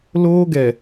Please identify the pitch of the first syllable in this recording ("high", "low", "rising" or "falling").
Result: high